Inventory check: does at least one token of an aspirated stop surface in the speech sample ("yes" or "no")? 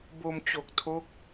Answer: yes